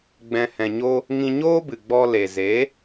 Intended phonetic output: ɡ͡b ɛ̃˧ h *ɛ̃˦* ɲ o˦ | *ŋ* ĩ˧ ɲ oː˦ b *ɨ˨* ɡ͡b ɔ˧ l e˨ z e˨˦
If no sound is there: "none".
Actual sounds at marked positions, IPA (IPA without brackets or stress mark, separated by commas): ɛ̃˧, ŋ, ɨ˨